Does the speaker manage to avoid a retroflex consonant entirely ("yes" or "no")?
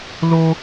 yes